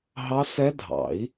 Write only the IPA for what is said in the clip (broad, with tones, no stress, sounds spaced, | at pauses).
ɦ ɑ˦˥ s ɛ˦˥ dʱ ɑ̰˨˩˦ i̯